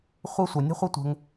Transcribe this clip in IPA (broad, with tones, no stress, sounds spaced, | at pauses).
χʷ ə˦ sʷ ɐ˨ nʲ ə̤˥ χʷ ɐ˥ tʷ ə̤˨ ŋ